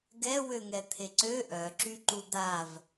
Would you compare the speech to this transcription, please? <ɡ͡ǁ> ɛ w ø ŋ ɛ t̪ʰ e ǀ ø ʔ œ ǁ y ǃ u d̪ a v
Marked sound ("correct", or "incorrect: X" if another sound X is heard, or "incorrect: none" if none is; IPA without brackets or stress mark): incorrect: ɡ